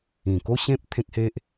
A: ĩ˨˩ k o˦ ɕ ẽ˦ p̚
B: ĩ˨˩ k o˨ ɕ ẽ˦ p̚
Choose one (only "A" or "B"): A